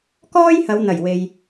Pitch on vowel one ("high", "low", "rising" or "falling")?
high